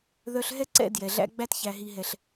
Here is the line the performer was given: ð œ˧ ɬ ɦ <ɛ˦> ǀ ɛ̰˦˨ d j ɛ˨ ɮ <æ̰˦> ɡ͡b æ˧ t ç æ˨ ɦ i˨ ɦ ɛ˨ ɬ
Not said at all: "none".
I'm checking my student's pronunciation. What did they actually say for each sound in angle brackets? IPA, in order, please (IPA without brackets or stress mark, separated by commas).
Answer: ɛ˦, æ̰˦